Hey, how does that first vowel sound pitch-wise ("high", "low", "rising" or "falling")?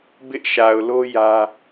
high